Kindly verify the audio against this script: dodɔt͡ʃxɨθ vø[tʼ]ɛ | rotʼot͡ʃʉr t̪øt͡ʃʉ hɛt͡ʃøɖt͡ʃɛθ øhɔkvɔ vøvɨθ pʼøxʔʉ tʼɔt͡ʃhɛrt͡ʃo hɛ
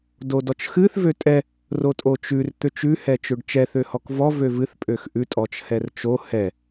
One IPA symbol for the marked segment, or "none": tʼ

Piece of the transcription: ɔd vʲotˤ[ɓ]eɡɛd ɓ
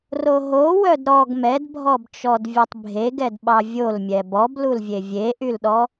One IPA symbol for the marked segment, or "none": bʱ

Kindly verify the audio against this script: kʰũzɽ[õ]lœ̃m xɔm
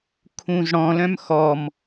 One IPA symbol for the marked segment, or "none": ɔ̃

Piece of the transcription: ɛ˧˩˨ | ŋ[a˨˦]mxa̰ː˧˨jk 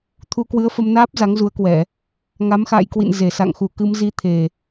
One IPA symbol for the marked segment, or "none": a˨˦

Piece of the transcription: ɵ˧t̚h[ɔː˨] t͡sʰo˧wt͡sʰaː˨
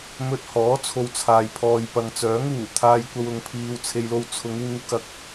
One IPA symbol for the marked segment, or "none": ɔː˨˥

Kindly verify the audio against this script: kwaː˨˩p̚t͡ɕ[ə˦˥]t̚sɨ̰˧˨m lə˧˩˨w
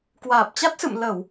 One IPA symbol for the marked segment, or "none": a˦˥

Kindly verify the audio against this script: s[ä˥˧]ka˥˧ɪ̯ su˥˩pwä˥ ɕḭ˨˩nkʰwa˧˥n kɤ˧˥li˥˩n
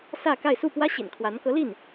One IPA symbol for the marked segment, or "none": ä˥˧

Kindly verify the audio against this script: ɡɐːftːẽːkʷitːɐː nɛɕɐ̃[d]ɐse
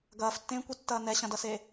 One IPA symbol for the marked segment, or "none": d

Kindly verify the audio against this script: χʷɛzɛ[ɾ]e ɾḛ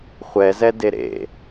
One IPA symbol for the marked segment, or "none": d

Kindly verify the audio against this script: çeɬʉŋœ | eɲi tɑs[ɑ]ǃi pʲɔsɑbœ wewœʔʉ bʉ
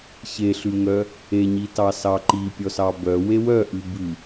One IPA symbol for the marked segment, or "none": ɑ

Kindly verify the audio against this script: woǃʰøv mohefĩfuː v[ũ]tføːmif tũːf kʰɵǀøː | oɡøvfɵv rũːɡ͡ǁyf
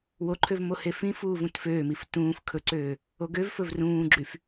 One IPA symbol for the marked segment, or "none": ũ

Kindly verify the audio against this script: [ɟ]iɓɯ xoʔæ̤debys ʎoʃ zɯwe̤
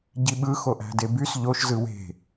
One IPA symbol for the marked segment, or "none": ɟ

